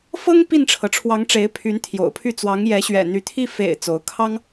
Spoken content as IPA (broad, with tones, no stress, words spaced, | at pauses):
fɤ˥ŋ pi˥˩nʈ͡ʂʰɤ˩ʈ͡ʂʰwɑ˧˥ŋ ʈ͡ʂe˧˥ɪ̯pʰy˧˥nt̪ʰjo̰˨˩ʊ̯pʰy˥˩ t͡swɑ˧˥ŋjɛ˧˥ɕɥɛ̰˨˩n̪y˧˥ t̪ʰi˥˩ fḛ˨˩ɪ̯ t͡so˧˥ʊ̯ kʰɑ˥ŋ